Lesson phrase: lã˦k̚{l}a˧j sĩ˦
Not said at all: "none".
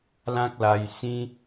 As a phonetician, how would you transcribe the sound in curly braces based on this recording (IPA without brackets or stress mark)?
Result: l